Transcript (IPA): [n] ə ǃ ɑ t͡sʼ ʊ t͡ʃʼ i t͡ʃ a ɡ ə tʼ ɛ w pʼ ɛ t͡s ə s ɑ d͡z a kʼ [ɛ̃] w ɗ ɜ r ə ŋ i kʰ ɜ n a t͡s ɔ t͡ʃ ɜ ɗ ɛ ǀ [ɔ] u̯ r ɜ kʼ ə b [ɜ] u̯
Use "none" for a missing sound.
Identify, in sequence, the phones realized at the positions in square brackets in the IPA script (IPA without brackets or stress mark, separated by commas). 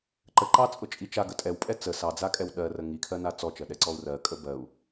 ǃ, ɛ, ɔ, ɜ